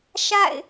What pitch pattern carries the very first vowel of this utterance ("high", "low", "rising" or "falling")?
falling